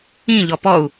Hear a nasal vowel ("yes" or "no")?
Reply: yes